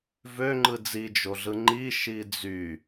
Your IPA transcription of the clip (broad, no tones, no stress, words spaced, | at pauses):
vø ŋ͡ǃɯd͡zi d͡ʒoɮɯŋ͡ǃi ʃid͡zy